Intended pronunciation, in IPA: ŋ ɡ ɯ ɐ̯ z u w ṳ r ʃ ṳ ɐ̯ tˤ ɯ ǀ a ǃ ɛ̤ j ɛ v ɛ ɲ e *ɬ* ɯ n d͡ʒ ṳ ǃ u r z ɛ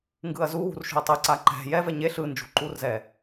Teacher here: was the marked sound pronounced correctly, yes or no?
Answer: yes